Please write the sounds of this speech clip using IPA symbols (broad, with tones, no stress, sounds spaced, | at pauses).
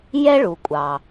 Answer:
j ɛ˥ ɭ u˩ kʷʼ ɑ˩